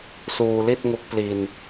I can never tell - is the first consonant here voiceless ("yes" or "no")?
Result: yes